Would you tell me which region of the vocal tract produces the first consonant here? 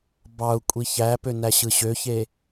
lips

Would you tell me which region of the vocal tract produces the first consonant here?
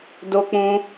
tongue tip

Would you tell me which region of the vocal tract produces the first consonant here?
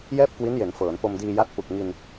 palate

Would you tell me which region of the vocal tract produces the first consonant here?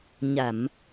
palate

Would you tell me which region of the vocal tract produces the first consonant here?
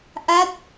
throat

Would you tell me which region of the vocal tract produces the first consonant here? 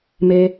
lips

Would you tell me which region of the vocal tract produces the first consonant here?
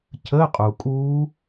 palate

